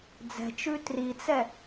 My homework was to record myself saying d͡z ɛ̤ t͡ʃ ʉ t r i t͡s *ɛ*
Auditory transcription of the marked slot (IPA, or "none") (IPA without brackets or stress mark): ɛ